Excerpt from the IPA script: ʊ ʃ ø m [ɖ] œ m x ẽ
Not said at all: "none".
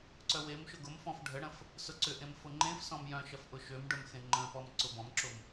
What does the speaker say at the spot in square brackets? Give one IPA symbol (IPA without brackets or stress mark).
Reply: ɖ